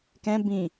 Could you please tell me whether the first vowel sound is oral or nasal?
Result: nasal